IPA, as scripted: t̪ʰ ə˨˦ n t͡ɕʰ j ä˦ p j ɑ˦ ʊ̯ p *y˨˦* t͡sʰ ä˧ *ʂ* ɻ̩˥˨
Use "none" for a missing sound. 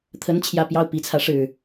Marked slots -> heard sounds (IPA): i˨˦, ʂ

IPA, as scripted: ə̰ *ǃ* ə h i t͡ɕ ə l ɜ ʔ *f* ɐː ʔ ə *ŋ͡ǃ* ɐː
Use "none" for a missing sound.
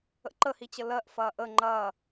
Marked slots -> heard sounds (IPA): ǃ, f, ŋ͡ǃ

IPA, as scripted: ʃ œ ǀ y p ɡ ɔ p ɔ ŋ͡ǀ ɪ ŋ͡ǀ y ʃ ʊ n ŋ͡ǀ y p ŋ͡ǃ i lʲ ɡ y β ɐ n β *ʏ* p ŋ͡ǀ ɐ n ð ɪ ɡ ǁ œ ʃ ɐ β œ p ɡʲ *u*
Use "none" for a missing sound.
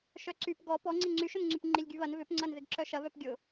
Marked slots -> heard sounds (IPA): ʏ, ʊ

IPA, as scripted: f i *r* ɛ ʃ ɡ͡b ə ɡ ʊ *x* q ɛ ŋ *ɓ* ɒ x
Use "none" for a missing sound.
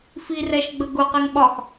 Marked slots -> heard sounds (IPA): r, none, ɓ

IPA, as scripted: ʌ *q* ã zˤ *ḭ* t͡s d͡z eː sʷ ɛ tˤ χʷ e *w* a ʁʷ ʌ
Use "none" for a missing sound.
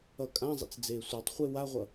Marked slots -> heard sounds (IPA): kʼ, ḭ, w

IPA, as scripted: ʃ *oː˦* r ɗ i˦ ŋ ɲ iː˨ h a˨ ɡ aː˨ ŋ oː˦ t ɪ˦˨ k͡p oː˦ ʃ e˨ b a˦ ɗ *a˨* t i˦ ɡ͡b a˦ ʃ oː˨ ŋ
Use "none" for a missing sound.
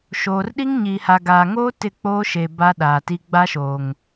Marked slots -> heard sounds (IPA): oː˨, aː˨

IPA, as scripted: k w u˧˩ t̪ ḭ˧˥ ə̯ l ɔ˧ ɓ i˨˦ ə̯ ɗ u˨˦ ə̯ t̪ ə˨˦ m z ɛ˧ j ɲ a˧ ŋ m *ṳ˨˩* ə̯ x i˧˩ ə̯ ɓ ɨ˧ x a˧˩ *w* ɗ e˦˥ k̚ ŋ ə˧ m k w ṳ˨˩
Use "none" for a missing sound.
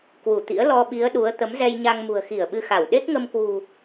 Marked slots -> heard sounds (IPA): ṳ˨˩, w

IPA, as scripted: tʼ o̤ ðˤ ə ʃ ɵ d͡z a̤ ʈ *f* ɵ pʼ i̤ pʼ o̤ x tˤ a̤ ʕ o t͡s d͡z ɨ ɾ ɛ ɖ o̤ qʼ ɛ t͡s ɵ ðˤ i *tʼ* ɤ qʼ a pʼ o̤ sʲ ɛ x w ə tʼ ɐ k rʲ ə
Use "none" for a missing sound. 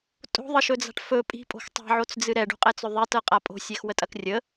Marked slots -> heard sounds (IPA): f, t

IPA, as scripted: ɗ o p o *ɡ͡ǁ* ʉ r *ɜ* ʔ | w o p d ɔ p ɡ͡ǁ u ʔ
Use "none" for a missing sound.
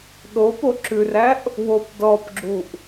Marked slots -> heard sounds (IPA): ǁ, æ

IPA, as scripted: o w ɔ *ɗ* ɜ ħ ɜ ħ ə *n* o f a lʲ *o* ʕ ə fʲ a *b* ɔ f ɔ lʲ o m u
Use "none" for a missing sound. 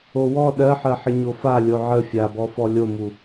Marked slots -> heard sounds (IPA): ɗ, ɲ, o, b

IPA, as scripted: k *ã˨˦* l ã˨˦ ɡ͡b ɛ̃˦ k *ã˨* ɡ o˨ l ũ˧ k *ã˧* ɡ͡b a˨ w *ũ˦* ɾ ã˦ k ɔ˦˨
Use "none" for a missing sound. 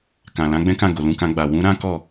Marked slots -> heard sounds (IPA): ã˨, ã˦˨, ã˧, ũ˨˦

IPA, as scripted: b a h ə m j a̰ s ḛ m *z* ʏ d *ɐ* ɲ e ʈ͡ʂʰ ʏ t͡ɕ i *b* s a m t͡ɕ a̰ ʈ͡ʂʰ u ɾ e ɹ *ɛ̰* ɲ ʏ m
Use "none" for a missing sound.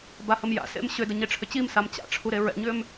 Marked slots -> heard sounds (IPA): ɕ, ə, m, ɛ̰

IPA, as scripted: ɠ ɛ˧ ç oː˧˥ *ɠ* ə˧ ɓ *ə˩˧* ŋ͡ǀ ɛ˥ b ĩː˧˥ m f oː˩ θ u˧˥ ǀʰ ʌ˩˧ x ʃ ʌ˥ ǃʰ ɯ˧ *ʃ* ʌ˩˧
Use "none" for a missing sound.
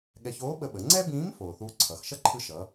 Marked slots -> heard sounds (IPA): ɓ, ə˩˧, ʃ

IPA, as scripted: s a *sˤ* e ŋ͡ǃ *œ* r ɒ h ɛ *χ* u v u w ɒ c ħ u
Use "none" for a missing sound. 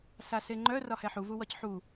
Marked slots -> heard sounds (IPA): s, œ, ħ

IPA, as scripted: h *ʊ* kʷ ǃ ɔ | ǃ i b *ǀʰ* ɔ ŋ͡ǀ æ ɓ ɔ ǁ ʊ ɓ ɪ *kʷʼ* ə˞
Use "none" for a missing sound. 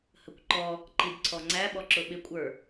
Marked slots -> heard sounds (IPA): ə, ǀʰ, kʷʼ

